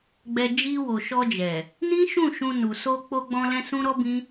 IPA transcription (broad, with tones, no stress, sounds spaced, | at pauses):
ɡ͡b ɛ˨ d͡ʒ i˧ w o˨ ʃ ɔ˧ d͡ʒ ɛ˨ | n ĩ˦ ʃ ũ˦˨ ʃ ũ˧ n u˨ s o˧ k͡p o˧ ɡ͡b ɔ̃˧ l ɛ̃˦ s ũ˦ ɾ ɔ˦ b ĩ˦